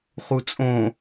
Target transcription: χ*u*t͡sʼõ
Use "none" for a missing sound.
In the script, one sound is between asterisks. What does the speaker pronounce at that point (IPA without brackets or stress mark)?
u